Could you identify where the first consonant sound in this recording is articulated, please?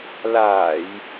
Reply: alveolar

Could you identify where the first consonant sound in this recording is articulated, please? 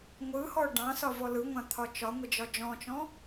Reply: velar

